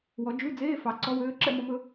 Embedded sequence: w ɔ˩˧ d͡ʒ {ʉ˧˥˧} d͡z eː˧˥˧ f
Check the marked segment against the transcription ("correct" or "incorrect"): correct